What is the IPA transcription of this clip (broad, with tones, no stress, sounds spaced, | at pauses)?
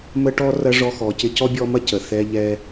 m ə˦ ʈ ɔ˦ r ɐ˥ ʐ ɔ˦ x ɔ˨ c ɪ˦ c ɔ˥ bʲ ɔ˦ m ɐ˥ c ə˩ θ ɛ˦ ʎ ɛ˦